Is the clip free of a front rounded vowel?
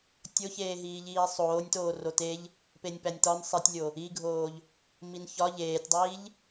yes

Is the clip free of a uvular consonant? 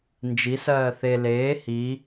yes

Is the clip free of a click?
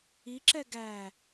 no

